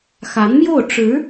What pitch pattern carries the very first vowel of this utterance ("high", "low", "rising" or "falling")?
rising